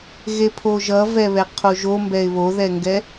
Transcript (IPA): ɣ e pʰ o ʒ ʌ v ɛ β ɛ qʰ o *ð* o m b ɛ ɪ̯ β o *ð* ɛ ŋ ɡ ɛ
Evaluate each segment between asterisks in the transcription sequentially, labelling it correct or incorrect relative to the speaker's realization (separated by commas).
incorrect, correct